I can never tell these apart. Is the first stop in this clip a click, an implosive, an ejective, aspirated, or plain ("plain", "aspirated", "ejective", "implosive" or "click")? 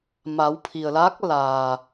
aspirated